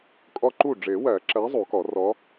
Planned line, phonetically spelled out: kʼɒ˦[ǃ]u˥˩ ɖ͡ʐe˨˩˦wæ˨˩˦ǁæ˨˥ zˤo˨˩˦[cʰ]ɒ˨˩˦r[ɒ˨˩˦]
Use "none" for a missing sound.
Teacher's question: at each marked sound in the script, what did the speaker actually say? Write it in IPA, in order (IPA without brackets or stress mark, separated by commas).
ǃ, k, ɒ˨˥